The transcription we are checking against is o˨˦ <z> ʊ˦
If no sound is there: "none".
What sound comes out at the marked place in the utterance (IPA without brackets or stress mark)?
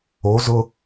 z